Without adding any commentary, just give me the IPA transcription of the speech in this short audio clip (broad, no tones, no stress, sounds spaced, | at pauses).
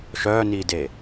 ʃ œː n iː d e